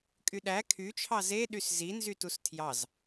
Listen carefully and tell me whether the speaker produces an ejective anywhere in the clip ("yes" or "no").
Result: yes